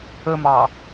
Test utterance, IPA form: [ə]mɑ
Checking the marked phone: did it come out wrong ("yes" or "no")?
no